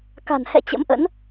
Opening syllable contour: low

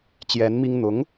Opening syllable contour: rising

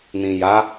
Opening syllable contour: low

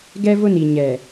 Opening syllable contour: high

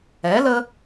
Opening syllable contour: rising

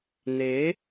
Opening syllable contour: rising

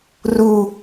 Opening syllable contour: low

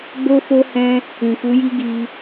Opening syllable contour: high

